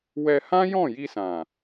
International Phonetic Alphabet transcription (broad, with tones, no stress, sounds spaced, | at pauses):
w ɛ˧ h ã˦ j ɔ̃˦˨ j i˧ s ã˨